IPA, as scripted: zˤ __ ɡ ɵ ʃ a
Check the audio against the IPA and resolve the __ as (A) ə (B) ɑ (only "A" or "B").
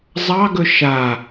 B